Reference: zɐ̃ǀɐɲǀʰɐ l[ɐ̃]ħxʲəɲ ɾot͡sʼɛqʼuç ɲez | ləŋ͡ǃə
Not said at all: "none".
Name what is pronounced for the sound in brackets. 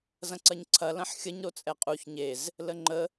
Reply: ɐ̃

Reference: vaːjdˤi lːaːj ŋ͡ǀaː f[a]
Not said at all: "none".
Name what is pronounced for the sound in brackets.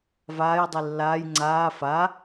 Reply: a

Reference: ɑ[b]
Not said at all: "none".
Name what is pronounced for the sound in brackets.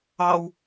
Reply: w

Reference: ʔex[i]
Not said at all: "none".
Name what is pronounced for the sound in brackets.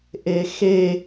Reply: e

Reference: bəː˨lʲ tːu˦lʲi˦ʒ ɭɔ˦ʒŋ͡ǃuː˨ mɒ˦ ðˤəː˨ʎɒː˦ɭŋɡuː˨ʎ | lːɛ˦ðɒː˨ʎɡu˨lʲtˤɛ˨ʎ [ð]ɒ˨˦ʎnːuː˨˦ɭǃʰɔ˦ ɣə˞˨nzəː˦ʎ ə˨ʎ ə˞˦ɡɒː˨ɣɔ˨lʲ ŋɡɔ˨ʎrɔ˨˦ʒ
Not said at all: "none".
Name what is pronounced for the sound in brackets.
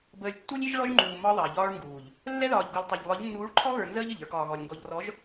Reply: β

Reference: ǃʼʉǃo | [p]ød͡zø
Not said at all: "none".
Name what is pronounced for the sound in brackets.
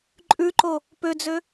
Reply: p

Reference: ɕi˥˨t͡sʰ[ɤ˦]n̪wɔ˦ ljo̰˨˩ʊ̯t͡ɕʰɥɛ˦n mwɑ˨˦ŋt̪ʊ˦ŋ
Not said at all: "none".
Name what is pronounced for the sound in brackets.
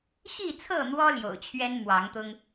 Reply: ɤ˥˨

